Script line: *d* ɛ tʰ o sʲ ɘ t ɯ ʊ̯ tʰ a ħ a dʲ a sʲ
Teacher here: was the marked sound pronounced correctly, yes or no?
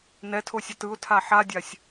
no